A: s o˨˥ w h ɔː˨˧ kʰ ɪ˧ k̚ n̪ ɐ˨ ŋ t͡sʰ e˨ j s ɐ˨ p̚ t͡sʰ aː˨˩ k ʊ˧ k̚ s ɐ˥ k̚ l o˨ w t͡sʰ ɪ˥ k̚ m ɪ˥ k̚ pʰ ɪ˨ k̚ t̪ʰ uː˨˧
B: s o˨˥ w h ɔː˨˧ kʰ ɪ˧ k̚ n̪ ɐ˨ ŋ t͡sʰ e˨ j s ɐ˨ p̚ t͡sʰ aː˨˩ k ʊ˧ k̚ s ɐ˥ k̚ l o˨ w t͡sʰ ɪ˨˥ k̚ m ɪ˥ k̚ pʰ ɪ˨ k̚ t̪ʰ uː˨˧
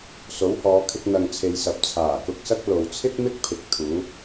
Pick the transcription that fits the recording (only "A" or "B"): A